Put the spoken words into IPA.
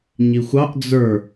ɲ i xʷ ɑ ʔ d͡z ə˞

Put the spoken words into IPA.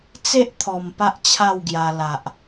t͡s e˦ ʔ t̪ʰ ɔ˨˩ m p a˦ ʔ t͡ɕʰ a˥˧ w ɡ j a˧ l a˨ ʔ

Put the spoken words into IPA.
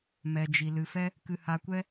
m ɛ˧ d͡ʒ i˧ l ɨ˧ f ɛ˦ | k ɨ˧ h a˧ kʷ ɛ˦

